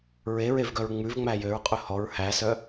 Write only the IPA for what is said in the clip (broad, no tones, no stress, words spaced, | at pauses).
ɹeɹevɡœɹ ŋ͡mʉvŋ͡mæ jøɹqʼɵ hɔɹ hæsœ